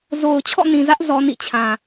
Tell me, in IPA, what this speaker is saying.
z o˨ ʊ̯ t͡ɕʰ ɔ̰˦˨ n ĩ˨ z ä˦ ʔ z ɔ˦ n ḭ˦˨ t͡ɕʰ ã˨

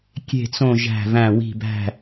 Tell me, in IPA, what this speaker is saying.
kʲ e̤˥˨ t͡s õ˥˨ ʒ æ̤˧˩ v æ̃˧˩ w i̤˧˩ b æ̤˧˩

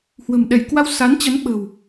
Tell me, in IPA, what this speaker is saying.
h w ə̤˨˩ m ɗ ɛ˧˩ j k w a˧ w s a˨˦ n t͡ɕ ə˨˦ n ɓ ə̤˨˩ w

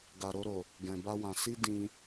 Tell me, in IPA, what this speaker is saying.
ɡ a˨ ɾ o˧ ɾ o˨ | ɡ ɛ̃˨ b a˧ w ã˨ s i˧ d ĩ˧

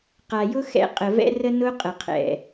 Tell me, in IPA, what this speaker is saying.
q a˨ j ʊ˦ x ɛ̰˨˦ qʼ ə˨ v ɛ̰˦ r ə˦ n ʊ˦ qʼ ə˨ qʰ ɛ̰˨

